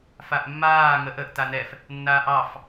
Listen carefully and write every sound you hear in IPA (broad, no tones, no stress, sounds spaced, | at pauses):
f a ʔ mː aː ŋ ə ʔ ə ʔ t a n ɛ f | nː aː ʔ ɑ f